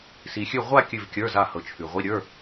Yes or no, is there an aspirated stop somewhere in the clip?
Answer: yes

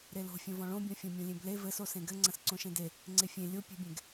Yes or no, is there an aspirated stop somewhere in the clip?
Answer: no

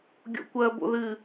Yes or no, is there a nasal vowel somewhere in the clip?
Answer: no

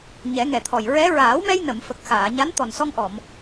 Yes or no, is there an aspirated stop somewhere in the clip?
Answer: yes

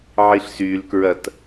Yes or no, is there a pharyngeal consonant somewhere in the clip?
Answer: yes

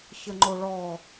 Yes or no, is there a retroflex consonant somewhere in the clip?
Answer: yes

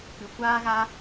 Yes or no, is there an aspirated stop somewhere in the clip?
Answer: no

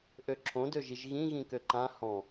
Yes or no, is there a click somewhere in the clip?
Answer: yes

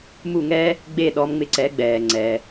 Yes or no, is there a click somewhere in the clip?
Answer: yes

